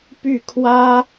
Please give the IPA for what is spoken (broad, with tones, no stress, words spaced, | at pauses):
py˥˩ kʰwä˥